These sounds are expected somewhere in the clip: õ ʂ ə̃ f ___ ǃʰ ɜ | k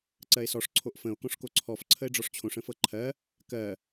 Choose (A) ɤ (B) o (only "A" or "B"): A